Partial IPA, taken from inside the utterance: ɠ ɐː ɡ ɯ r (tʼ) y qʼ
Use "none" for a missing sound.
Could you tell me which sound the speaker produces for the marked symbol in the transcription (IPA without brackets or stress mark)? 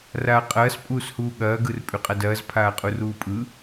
pʼ